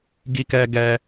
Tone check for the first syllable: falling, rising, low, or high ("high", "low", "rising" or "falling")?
high